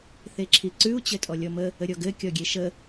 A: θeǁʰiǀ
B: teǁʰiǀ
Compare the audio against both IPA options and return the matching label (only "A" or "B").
A